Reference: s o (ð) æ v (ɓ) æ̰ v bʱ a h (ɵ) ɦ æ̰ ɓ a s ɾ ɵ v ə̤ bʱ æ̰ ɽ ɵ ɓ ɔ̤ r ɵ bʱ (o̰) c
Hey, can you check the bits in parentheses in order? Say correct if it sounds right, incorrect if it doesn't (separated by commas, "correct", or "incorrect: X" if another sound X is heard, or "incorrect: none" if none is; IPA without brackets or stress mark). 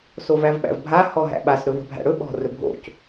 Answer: incorrect: v, correct, incorrect: ɔ, correct